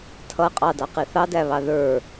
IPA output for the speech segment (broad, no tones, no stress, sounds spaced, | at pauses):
tʰ ʌ qʼ ɑ d ɑ q i θ ɑ d æ β ɑ ð ə˞